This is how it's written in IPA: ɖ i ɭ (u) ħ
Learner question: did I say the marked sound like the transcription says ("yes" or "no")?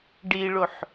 no